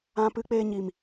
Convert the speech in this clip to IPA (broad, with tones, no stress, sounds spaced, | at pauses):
ã˧ p ɨ˧ k͡p eː˧ ɲ i˨ m